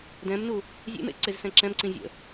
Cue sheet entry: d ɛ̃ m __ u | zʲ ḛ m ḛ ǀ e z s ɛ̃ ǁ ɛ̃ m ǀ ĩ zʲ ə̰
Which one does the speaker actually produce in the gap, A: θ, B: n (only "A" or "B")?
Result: B